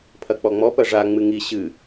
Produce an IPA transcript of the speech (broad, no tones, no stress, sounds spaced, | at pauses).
pʰ ɐ k͡p ɔ ŋ͡m ɔ p ɐ ʐ a ŋ͡m ɨ ŋ i ɕ ɨ